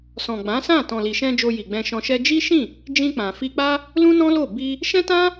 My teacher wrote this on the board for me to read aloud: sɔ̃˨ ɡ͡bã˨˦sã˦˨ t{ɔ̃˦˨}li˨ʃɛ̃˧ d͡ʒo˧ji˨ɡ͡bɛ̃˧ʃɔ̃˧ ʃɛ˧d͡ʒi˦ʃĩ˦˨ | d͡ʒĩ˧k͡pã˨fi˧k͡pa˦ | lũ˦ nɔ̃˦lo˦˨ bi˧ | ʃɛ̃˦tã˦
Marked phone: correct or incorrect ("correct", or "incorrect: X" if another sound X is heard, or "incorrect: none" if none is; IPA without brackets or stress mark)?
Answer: incorrect: ɔ̃˨